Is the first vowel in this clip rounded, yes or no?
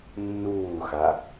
yes